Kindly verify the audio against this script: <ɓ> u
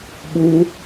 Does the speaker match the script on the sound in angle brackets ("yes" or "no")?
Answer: yes